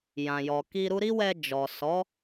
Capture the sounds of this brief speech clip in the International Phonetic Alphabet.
j ã˨ j ɔ˨ k i˧ ɾ u˦ ɾ i˦ w ɛ˧ d͡ʒ ɔ˨ s ɔ˨˦

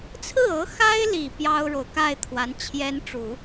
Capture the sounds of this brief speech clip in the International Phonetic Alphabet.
t͡sʰ ɹ̩˥˩ ɤ˧˥ x a˥ ɪ̯ l i˨˩ p j ɑ˥ ʊ̯ ɻ o˨ ʊ̯ k a˥˩ ɪ̯ t̪ʰ w a˧˥ n t͡ɕʰ j ɛ˥ n ʈ͡ʂ u˨˩˦

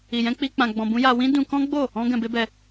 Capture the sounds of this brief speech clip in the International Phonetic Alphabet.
i˨ j ɛ̃˧ k͡p i˧ k͡p ã˧ ɡ͡b ɔ̃˧ b ũ˦ j a˧ w ĩ˦ d ũ˧ k ɔ̃˦ ɡ͡b o˦˨ | ɔ̃˦ ɡ ɛ̃˧ b e˦ b ɛ˧

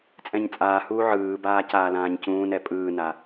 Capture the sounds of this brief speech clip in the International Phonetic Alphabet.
t͡sʼ ɛ̃ ɲ t͡sʼ aː h uː ʕ ɯː b aː c aː l ãː ɲ c ũː n ɛ pʼ ɯː n a

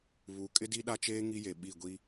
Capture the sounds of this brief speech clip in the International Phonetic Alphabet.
β u˨˦ kʼ ɪ˦ d i˦ ɗ a˦ t͡ʃ eː˦ ŋ i˦ j e˨ ɓ i˦˨ ɡʷ i˦

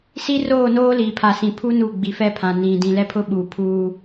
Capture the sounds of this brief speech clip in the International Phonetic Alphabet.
s i˦ r oː˦˨ n oː˦ l iː˨ pʰ a˨ s ĩ˨ pʰ uː˦ n u˦˨ ɡ͡b i˨ f ɛ˦ pʰ ã˨ n ĩ˨ d ĩ˨ l ɛ˦ pʰ ʊ˦ ɓ uː˨ pʰ uː˦

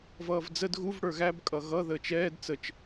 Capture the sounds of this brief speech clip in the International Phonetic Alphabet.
v ʌː v d͡z ə d ɣ u v ɽ ə˞ ɣ æ b kʼ ʌ ɣ ʌ ð əː t͡ʃ ɛː d t͡s ə t͡ʃ

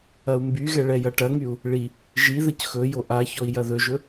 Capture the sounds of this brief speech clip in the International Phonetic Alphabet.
ɐ u̯ m b y ɣ ɛ ɭ ɛ j ɐ ʈ ɐ ŋ y u̯ | ɭ i | ʒ i ð ə c x ɵ j o ʔ a ç ɔ i̯ j ɐ ð ɵ ʒ ɵ

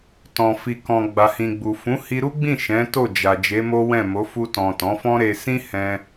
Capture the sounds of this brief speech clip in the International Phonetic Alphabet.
t ɔ̃˨ f i˨ k ɔ̃˨ ɡ͡b a˨ h ĩ˨ ɡ͡b u˨ f ũ˨˦ h i˧ ɾ u˦ ɡ͡b ĩ˦˨ ʃ ɛ̃˨˦ t o˦˨ d͡ʒ a˨ d͡ʒ e˨˦ m o˦ w ɛ̃˦˨ m o˨˦ f u˧ t ɔ̃˨ t ɔ̃˨˦ f ɔ̃˦ ɾ e˧ s ĩ˦ h ɛ̃˧

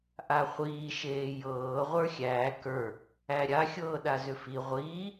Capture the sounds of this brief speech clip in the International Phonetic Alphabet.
ʔ a χʷ iː ʃ eː j ɤː ʁʷ ə˞ xʲ æː k ə˞ | æ ɾʲ a xʲ ɤː ɗ a z ʏ f i ʁʷ iː

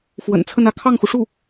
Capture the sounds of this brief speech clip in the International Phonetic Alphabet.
f w ə̰˨˩ n t͡sʰ ə˥˧ n ä˥˧ kʰ ɑ˥˩ ŋ x u˩ ʂ u˥˩

